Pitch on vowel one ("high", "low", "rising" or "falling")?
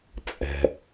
low